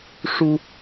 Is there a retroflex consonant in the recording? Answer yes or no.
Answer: yes